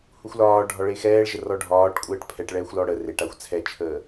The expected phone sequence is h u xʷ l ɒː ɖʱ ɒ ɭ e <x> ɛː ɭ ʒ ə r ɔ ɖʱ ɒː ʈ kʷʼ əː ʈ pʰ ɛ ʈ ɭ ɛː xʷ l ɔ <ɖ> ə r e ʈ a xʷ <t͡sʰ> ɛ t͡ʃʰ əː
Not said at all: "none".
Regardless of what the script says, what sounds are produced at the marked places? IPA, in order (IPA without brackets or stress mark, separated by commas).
x, ɽ, t͡sʰ